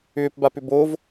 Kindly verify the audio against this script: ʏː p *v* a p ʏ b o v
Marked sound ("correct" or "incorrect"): incorrect